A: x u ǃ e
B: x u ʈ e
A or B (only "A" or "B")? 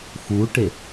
B